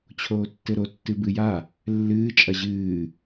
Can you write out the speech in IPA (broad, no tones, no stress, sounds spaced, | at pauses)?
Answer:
t͡ɕʰ oː tː ɘ ɾ o tː ɨ b ɨ j a | lː ɨː t͡ʃʼ ɐ ʑ ɨː